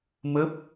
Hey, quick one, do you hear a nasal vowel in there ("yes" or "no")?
no